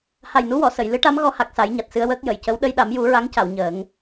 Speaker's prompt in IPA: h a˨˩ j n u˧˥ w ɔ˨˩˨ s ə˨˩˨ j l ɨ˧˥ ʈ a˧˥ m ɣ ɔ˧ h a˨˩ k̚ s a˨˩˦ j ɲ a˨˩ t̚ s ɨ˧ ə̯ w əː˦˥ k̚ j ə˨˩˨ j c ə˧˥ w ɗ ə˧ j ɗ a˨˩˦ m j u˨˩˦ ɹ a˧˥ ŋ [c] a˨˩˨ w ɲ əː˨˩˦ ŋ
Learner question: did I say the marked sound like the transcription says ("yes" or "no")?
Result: yes